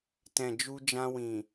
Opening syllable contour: low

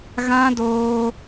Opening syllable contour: high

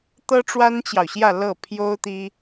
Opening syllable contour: high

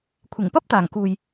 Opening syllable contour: low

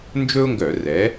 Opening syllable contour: high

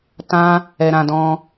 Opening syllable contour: high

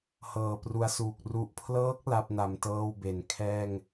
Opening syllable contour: low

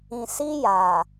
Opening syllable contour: low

